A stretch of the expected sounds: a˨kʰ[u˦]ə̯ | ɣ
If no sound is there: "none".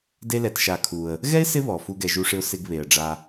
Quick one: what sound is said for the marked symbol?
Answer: u˩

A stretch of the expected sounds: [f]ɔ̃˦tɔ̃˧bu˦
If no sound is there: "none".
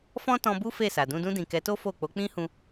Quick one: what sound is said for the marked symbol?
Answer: f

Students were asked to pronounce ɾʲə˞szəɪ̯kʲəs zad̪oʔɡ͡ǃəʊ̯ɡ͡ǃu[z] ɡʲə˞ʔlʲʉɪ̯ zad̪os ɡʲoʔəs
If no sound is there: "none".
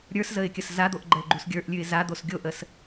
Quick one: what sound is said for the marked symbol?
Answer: s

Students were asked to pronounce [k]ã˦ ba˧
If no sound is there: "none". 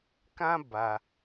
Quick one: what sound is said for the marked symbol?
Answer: k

